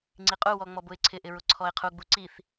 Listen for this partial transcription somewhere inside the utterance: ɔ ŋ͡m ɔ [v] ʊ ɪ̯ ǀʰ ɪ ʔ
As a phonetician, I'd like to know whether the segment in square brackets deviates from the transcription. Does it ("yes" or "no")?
yes